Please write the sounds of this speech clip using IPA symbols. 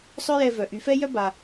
sˤ œ˥ j ɛ˧ v œ˩ ʔ y˩˧ f ɛ˥ j œ˥ b a˩

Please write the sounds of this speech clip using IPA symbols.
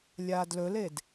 lʲ aː d l ɵ l e d

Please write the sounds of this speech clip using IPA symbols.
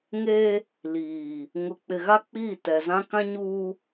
ŋ e˦ | l iː˨ | ŋ ʊ˨ k͡p ɪ˨ ɣ a˦ k͡p iː˦˨ t ɛ˨ z ã˦ k ã˦ ɲ uː˦

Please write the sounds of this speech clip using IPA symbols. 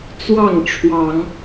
t͡s w ɑ˥˨ ŋ ʈ͡ʂʰ w ɑ˨˦ ŋ

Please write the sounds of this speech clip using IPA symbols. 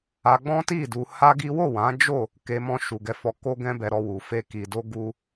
a˧ ɡ͡b ɔ̃˦ t i˦˨ d u˧ h a˦ ɡ i˦ w o˦˨ w ã˨˦ d͡ʒ o˦˨ | k e˧ m ɔ̃˧ ʃ u˨ ɡ ɛ˨˦ f ɔ˧ k o˦ ɡ ɛ̃˦ b ɛ˧ ɾ ɔ˧ w u˨ f e˧ k i˨ d o˧ ɡ u˧

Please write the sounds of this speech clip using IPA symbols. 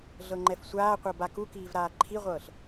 ɮ ɤ ŋ͡ǃ ɛ f sʷ aː qʷ ɤ b a k u k iː v ɾ aː ǃʰ i ʁʷ ɤː ɬ

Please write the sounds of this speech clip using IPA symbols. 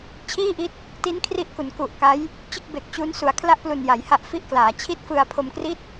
t͡ɕʰ iː˥˩ ʔ i˦˥ t̚ | t i˦˥ n kʰ r i˦˥ ʔ k u˩˦ n k u˨˩ ʔ k a˦˥ j | t͡ɕ ɯ˥˩ k̚ b e˨˩ k̚ t͡ɕ u˦˥ n s u˩˦ a̯ kʰ l a˥˩ ʔ p l u˨˩ n j a˩˦ j h a˦˥ ʔ f i˥˩ ʔ k l aː˩˦ t͡ɕʰ i˥˩ t̚ f ɯ˧ a̯ pʰ o˧ m k r i˥˩ t̚

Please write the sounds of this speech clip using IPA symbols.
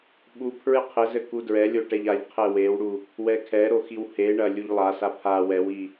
ɓ u pʰ ɹ ɨ qʰ ɘ z ɘ k u d ɹ ɛ lʲ o ʈ ɛ ʎ a ʎ qʰ ɛ w e w ɽ u | w ɛ kʰ ɛ ɾ o x i w h e ɳ ɐ lʲ u ʎ lˠ a s a pʰ a w ɛ w i

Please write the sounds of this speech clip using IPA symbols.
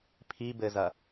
pʰ i b ɘ z ɐ

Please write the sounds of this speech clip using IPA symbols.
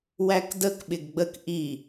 w æ k d ə k ɓ ɪ ɡ ɡ͡b ə k ʔ i

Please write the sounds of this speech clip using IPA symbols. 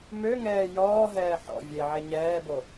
m ø ŋ ɛː j ɔː ɦ ɛː ħ ɔ̰ vʲ e ʕ e ɲ ɛː b o

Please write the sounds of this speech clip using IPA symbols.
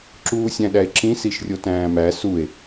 ǁ uː sʲ æ̃ ɗ æ e̯ ǁ ĩ s i ʃ rʲ o t æ̃ː m æ s u e̯

